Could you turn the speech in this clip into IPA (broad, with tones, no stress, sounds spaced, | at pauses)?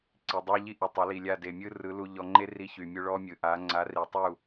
ǀ i˨ dˤ a˦ ʎ i˦ ʔ y˨ tˤ a˨˦ l i˨ lʲ a˦˨ d e˨ mʲ ɯ˦ r ɯ˨˦ l u˧ ʎ ɔ˧ ŋ͡ǃ e˦ r i˧ ç y˨ mʲ u˧ ɭ ɔ˦ mʲ ɯ˨ ʔ a˨˦ ŋ͡ǀ a˨˦ r i˨ tˤ u˦˨